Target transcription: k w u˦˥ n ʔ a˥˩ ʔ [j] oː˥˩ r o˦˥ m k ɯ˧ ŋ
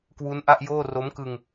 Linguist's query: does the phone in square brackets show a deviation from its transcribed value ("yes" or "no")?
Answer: no